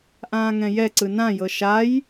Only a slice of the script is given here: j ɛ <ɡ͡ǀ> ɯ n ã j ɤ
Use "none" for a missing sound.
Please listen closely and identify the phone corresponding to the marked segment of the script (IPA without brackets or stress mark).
ǀ